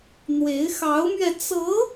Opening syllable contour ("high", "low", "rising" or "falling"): rising